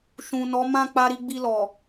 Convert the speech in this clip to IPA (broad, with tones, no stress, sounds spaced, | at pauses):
ʃ ũ˨ n ɔ˨˦ m ã˦˨ k͡p a˧ ɾ i˧ ɡ͡b i˧ l ɔ˨